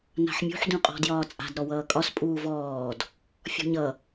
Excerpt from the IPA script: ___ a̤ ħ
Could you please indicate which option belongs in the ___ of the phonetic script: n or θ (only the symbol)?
n